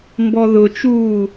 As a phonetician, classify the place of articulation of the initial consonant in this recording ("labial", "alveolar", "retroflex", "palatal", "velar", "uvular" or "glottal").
labial